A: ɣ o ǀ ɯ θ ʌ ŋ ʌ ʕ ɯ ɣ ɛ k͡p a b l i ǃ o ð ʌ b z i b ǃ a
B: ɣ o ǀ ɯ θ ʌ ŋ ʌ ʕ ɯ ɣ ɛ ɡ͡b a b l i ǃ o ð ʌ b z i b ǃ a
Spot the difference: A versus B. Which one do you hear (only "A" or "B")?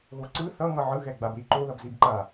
B